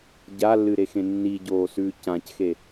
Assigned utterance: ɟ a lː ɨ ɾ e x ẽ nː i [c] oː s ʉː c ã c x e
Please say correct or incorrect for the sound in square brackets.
incorrect